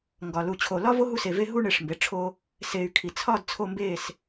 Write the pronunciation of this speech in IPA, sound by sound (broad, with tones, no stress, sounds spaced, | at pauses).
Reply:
ŋ ɡ ɒ˨ l u˨ t͡ɕʰ o˨ l ɒ˦ v o˦ ɦ u˧ s e˨ v e˧ ɦ u˧ ɳ e˨ ʂ m b e˨ ʈ͡ʂʰ o˧ | s e˨ y̯ kʰ i˨ t͡sʰ ɒ˦˨ d t͡sʰ o˧ m b e˦˨ s